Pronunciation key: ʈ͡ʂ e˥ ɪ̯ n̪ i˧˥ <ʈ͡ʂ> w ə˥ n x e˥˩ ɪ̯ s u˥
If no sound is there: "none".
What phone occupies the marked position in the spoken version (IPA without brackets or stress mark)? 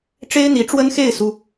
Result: ʈ͡ʂ